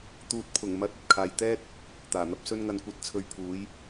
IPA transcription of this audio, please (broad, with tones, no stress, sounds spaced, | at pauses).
t̪ uː˨ t̚ pʰ ʊ˨˩ ŋ m ɐ˨˥ t̚ ɐ˨ t̚ kʰ aː˨ j t̪ ɛː˥ t̚ | t̪ aː˨˩ n̪ ɐ˨˥ p̚ s ɵ˥ n ŋ ɐ˧ n kʷ ɐ˨˥ t̚ t͡sʰ ɵ˨˧ ɥ pʰ uː˨˥ j